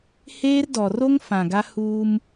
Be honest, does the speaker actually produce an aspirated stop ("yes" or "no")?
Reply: no